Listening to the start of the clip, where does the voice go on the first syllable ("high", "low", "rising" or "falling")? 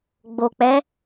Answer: low